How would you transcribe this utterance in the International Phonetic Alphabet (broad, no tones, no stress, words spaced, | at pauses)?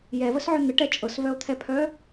jɛvəsʕœ n̪əʈɛ t͡ʃʼɤsvœo̯t̪ʰɛpʰœ